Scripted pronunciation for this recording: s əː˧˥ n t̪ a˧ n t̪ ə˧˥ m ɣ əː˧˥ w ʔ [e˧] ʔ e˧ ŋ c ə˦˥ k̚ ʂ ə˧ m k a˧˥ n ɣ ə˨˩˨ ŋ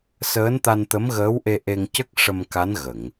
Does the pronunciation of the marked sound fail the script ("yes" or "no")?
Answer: no